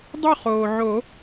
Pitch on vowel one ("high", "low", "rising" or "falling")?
falling